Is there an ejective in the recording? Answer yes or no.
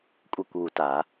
yes